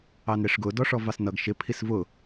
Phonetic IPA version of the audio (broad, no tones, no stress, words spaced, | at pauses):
ɑnɾɪʂɡʊ dɔʂɔvɑsnʌɡ ʃɪ pʰisvʊ